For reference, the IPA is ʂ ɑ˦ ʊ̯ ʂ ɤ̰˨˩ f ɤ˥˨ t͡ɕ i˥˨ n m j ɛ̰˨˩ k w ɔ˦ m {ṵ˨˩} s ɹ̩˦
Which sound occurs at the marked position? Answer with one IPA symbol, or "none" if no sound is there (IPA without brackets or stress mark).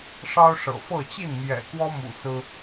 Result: ṵ˨˩